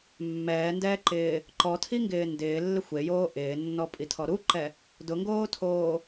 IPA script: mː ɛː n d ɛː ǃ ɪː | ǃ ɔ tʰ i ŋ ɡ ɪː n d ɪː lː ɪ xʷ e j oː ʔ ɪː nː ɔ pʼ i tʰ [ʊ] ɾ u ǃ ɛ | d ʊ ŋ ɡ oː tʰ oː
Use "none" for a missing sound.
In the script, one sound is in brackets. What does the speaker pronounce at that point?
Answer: ɔ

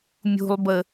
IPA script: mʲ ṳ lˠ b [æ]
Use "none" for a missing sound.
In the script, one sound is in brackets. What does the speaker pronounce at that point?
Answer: ə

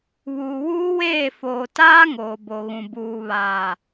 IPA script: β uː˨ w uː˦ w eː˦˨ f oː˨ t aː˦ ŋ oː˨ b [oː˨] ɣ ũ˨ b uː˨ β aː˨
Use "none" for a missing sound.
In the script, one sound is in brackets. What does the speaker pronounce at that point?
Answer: o˨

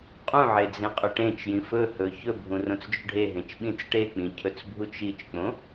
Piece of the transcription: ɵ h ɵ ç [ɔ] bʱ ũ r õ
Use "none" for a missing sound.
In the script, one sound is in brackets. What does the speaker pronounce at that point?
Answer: ɵ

